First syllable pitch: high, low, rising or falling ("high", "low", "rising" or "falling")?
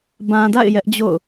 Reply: low